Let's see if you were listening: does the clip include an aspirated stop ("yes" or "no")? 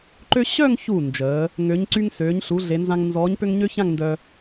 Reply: no